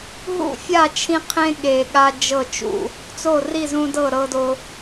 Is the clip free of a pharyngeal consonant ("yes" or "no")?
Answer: yes